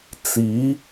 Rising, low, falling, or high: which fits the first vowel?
rising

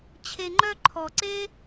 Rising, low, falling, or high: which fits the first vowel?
low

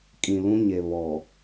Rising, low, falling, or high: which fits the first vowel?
low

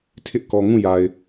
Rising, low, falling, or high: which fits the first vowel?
high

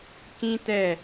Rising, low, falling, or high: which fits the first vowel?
high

